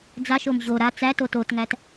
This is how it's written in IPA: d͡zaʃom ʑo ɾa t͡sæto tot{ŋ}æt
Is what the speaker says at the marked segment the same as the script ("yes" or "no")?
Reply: yes